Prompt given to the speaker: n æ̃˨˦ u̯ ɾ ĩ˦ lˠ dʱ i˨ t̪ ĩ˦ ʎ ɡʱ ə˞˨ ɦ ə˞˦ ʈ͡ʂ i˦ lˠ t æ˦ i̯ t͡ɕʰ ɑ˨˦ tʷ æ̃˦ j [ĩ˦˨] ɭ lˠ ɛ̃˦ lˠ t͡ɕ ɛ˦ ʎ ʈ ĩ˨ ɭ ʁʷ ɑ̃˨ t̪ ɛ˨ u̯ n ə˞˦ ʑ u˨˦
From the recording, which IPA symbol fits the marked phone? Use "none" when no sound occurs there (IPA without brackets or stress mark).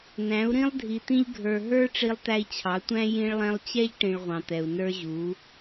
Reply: ĩ˦